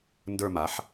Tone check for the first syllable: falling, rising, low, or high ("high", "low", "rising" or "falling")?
falling